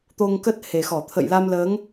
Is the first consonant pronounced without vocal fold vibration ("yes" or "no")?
yes